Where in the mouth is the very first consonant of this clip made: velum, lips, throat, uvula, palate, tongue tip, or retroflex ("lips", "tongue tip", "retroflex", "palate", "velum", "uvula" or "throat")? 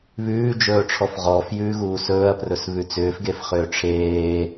lips